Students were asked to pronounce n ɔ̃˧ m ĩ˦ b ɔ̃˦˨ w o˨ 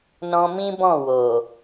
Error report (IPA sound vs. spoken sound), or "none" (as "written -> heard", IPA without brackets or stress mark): none